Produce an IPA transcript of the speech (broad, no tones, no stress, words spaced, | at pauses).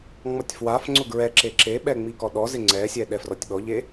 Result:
ŋ͡mɔtʲfwafŋ͡ǀʊ ɡɹɛǁe ǁeɓɛ ŋ͡mikɔɗɔzɪ ŋ͡ǀɛsʲɛ ɗɛfrɔtʲɓɔʎe